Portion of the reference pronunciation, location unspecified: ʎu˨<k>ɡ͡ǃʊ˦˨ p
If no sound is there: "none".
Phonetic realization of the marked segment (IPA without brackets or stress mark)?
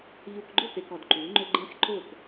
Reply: k